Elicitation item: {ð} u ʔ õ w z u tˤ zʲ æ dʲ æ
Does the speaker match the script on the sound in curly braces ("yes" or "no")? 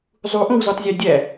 no